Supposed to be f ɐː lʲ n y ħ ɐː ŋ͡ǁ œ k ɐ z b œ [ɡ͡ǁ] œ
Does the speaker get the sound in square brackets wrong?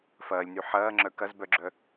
no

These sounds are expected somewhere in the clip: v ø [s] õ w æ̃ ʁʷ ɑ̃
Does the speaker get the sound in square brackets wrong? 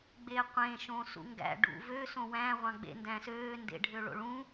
no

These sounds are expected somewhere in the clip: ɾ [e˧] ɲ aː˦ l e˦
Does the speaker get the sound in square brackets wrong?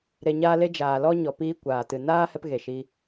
no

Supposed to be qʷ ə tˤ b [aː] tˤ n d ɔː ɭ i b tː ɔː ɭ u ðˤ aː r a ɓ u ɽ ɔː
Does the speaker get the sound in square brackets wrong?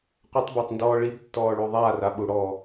yes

